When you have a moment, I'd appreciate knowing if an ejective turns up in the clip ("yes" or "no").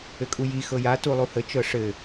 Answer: yes